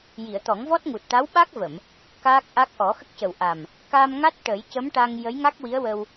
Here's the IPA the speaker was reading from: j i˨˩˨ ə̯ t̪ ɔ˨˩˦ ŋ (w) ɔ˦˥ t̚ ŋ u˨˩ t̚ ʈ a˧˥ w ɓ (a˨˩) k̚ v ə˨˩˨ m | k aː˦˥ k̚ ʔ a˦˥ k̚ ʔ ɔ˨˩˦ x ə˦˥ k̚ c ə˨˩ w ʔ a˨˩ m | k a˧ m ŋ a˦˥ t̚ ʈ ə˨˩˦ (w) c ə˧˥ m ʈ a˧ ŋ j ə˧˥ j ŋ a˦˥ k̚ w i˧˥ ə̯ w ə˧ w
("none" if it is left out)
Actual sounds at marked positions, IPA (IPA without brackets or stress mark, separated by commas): v, a˦˥, j